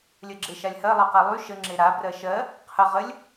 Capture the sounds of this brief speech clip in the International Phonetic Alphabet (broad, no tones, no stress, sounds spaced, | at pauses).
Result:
lʲ ɜ ɡ͡ǁ e ʃ a lʲ h ɜ lˠ ɜ q a lˠ y ʃ ə ŋ͡ǁ e ɾ a b r ɜ ʃ ɜ | qʰ ə ʁ ə lʲ